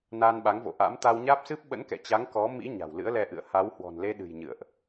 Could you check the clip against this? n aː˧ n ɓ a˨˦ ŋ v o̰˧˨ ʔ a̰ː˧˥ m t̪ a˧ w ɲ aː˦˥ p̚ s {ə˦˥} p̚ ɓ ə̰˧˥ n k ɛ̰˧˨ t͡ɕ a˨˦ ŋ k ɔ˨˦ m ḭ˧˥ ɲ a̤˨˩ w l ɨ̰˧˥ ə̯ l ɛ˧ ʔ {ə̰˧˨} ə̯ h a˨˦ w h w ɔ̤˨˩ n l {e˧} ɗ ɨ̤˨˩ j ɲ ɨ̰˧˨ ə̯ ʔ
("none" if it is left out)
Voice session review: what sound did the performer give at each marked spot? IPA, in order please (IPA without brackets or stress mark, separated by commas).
ɨ˦˥, ɨ̰˧˨, e˧